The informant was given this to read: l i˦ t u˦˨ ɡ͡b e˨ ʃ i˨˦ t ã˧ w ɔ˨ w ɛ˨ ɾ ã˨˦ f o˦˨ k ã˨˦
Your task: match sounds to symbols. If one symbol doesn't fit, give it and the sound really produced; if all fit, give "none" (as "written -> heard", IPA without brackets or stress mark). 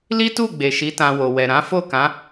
ɔ˨ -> o˨